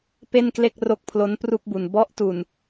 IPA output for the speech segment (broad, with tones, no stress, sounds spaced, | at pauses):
p e˥˩ n k l e˥˩ k̚ r o˦˥ k̚ pʰ l o˦˥ n p r u˥˩ k̚ b u˨˩ n b ɔ˦˥ ʔ t u˨˩ n